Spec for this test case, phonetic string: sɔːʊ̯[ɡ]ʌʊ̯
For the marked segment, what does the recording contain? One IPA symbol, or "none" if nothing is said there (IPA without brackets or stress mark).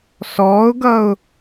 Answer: ɡ